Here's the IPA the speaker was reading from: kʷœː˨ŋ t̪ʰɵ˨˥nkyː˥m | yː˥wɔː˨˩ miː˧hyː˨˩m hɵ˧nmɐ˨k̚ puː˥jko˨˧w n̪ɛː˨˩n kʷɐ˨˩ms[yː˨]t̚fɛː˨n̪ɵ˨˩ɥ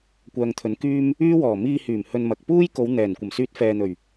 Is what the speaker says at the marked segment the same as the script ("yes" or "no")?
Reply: no